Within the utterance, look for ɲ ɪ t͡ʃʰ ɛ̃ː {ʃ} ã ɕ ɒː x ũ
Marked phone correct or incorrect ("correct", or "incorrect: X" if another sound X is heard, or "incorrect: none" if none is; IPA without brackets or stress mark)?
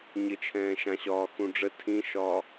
correct